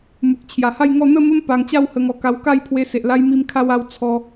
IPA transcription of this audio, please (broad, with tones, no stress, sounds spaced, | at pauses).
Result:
m u˨ k̚ t͡ɕʰ j a˨˩ h a˥˧ j ŋ ɔ˥˧ n̪ ə˥˧ m ə˦ m p a˧ ŋ t͡ɕ a˥˧ w h ə˧ ŋ ɔ˨˩ k a˧ w k a˥˧ j pʰ w e˧ s e˨ ʔ l a˦ j m i˦ m kʰ a˦ w a˥˧ w t͡sʰ ɔ˦